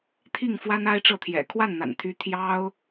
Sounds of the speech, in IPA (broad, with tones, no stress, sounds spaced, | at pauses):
t̪ʰ i˥˩ ŋ f w a˥ n a˥ ɪ̯ ʈ͡ʂ ɤ˥˩ t̪ʰ j ɛ̰˨˩ kʰ w a˥˩ n n̪ a̰˨˩ n t̪ʰ y˧˥ t̪ʰ j ɑ˥ ʊ̯